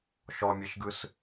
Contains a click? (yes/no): no